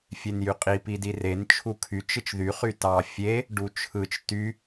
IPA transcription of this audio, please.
fʲ e n j y qʼ i p i d i r e n t͡ʃʰ u kʰ y t͡ʃ ɯ t͡ʃ ð y χ y t ɑ fʲ e | ɖ u t͡ʃʰ ɯ t͡ʃ t y

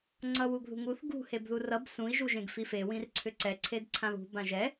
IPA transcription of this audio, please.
ŋ͡ǀ ʌ w u ɡ ð ṳ ŋ u θ ɡ ṳ h e b ð u r ʌ b s ũ i̯ ʒ u ʒ ẽ ɡ f i f e w ĩ r ǀʰ ʏ ǀ ɛ ǀʰ e d ǀʰ ã β ṳ b ã ʒ ɛ

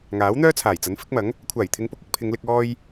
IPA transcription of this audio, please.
ŋ aː˨˥ w n̪ œː˥ t͡sʰ aː˨˩ j t͡s ɐ˨˥ n f ɪ˨˥ k̚ m ɐ˨˥ ŋ | kʷʰ aː˨˩ j t̪ʰ ɪ˨˧ ŋ p ʊ˧ k̚ ɪ˧ k̚ pʰ ɪ˨˧ ŋ l ɪ˧ k̚ ɔː˧ j

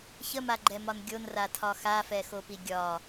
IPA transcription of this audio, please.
ç ə m a ɡ͡ǃ ɛ m ɒ n ɡʲ o n r a tʰ ɒ x a f ɛ x o p i ɡʲ ɒ

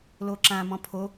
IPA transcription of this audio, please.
l o ǁ ã m ɔ̃ pʰ o

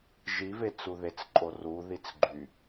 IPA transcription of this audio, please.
ʒ i v e t͡s u ð e t͡s ǃʼ o r u ð i t͡s ɡ͡ǃ y

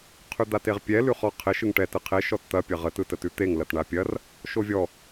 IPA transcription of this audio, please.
qʰ ʉ d̪ a t e ʁ pʲ ɛ l ʉ χ ɔ qʰ ɪ ʃ ɯ ŋ ʈ ɛ t ɯ qʰ e ʃ ɔ t t̪ ɐ pʲ ɐ ʁ ə t ɯ t ə t ʉ t̪ e ŋ l ɐ t ɳ a pʲ ɐ r | ʃ o vʲ ɔ

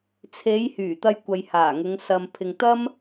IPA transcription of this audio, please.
t͡sʰ e˨˧ j h yː˨˩ t̪ ɐ˧ j kʷ ɐ˨ j h aː˨˩ ŋ ʊ˨˧ ŋ s ɐ˨ m pʰ ɪ˨ ŋ t̪ ɐ˥ m

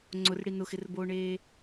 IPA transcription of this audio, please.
ŋ͡ǀ ʊ r ɽ i n ʊ x ɪ r b oː ɳ eː

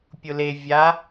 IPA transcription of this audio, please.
pʲ ʊ l e vʲ a

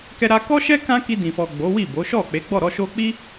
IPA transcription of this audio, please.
k ɛ˧ ɾ a˧ k ɔ˦ ʃ ɛ˦ k ã˦ k i˧ d ĩ˨ f ɔ˨ ɡ͡b o˨˦ w i˦˨ b o˨˦ ʃ ɔ˦˨ k͡p e˨˦ ɡ͡b ɔ˦˨ ɾ ɔ˧ ʃ o˧ k͡p i˦

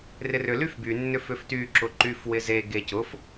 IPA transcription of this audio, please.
r ɪ r ʏ l y f b y nː ʏ f ʏ f t y ǁ ʊ ǃ y f w ɪ z e ɡ e c ʊ f

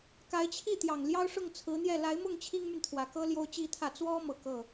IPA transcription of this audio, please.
k a˧˥ ɪ̯ t͡ɕʰ i˥˩ t̪ j ɑ˨˩ ŋ l j ɑ˥ ʊ̯ ʂ ʊ˥˩ ŋ t͡sʰ ɹ̩˧˥ n̪ j ɛ˥˩ l a˧˥ ɪ̯ m ʊ˥˩ ŋ t͡ɕʰ i˥ ŋ m y˨ n t̪ʰ w ä˨˩ k ɤ˥ l j o˥ ʊ̯ t͡ɕ i˥ t̪ʰ ä˥˩ t͡s w ɔ˥ m ɤ˨˩ k ɤ˥˩

